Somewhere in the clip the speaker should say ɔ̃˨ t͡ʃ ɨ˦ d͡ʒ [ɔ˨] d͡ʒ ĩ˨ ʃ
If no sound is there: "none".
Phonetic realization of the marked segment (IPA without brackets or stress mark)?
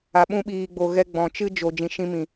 o˨